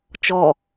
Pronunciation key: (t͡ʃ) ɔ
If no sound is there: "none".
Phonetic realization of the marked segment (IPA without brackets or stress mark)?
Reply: t͡ʃ